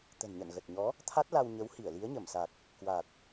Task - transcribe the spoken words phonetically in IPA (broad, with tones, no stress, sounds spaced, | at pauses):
t̪ ə̤˨˩ n ɲ ə̰˧˨ n ɣ ə˨˩ t̚ ɲ ɔ˨˦ | t̪ʰ a˦˥ t̚ l a˧ w ɲ ə˨˦ w h i˧˩ ə̯ l i˨˦ ə̯ ɲ ə˧˩ m s a˨˩ k̚ | k w a˨˩ t̚